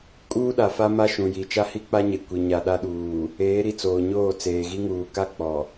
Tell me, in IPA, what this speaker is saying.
kʼ uː˦ ɗ a˨ f a˦ m a˦ ʃ ũ˨ j i˨ t͡ʃ a˦ h i˦ k͡p a˦ ɲ e˨ kʷ i˨ ɲ a˨ ɗ a˦ ɗ uː˨ | eː˨˦ ɾ i˨ t͡s oː˨ ɲ oː˦˨ t͡s eː˨ ɣ i˦ ŋ uː˨ k a˦ k͡p ɔ˨

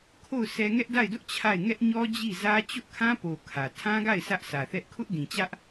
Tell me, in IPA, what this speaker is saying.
kʰ o˦˨ ʊ̯ s ɛ˦ ŋ ɛ˦ ʔ d a˦˨ ɪ̯ d ʊ˦ ʔ t͡ɕʰ a˦˨ ɪ̯ ŋ ɛ˦ ʔ ɲ ɔ˦ d͡ʑ i˦˨ z ä˦ t͡ɕ ʊ˦ ʔ kʰ ã˦ p o˨ kʰ ä˨ tʰ ã˦ ɡ a˦˨ ɪ̯ s ä˦ ʔ sʰ ä˨ θ ɛ˦ ʔ kʰ ʊ˦ ʔ d ĩ˨ t͡ɕ ä˦ ʔ

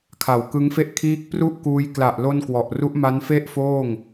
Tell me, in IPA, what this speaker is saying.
kʰ a˨˩ w k ɯ˦˥ ŋ f e˥˩ ʔ kʰ iː˦˥ k̚ p r u˥˩ ʔ k uː˧ j k l a˨˩ ʔ l o˧ n k w ɔ˨˩ ʔ r u˦˥ ʔ m a˦˥ n f e˥˩ ʔ f oː˥˩ ŋ

